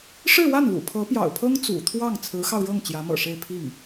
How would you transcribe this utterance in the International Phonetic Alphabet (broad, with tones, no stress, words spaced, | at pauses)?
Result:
ʂɻ̩˥˧wa˥˩nlṵ˨˩ pʰɤ˧˥pjɑ̰˨˩ʊ̯pʰɤ˥ŋ t͡sṵ˨˩t̪ʰwɑ˥˩ŋ t͡sʰɹ̩˧˥xɑ˧ʊ̯ɻɤ˥˩ŋ t͡ɕjä˧˥mɤ̰˨˩ʂe˥˧ɪ̯ pʰi˥˩ŋ